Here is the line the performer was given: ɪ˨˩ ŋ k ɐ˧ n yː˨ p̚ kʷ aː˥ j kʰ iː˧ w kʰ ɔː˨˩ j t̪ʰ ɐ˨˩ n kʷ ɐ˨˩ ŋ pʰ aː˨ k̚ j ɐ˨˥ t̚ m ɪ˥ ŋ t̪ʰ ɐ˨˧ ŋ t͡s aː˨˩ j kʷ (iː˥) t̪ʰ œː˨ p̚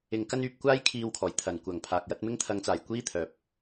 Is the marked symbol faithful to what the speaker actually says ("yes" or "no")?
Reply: yes